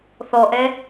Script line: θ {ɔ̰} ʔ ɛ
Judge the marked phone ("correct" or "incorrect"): incorrect